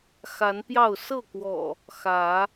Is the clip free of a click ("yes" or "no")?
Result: yes